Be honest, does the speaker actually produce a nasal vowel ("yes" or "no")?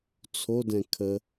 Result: yes